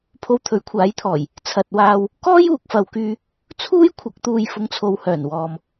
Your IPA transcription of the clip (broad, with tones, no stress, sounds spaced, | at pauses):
pʰ o˧ w t̪ʰ ɵ˨˥ ɥ kʷʰ aː˨˥ j t̪ʰ ɔː˨˩ j | t͡sʰ ɐ˨ t̚ w aː˧ w | k ɔː˥ j uː˨ k̚ f ɐ˨ w k yː˧ | t͡sʰ uː˥ j kʷʰ ɐ˨˥ k̚ t̪ uː˨ j f ʊ˨˧ ŋ t͡sʰ o˨ w h œː˨˩ n w ɔː˨ m